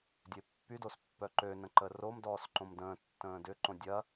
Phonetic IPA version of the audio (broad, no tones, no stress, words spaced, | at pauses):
dʲøpːydos pːœǃønə̃ ǃəromdɔːs ǃõmdə̃ːtːə̃ː dʏǃõ dʲɐ